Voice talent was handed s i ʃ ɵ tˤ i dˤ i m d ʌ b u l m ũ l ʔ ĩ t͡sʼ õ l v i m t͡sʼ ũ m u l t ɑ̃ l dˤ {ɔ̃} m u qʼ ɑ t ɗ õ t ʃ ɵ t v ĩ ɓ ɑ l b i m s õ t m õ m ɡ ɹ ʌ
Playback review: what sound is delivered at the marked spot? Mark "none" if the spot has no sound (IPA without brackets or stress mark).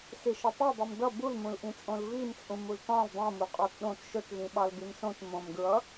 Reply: õ